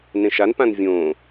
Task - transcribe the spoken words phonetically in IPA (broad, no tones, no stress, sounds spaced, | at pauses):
n ẽ ʃ a n p ã n vʲ õː